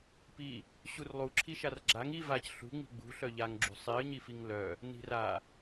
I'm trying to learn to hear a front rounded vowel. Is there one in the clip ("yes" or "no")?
yes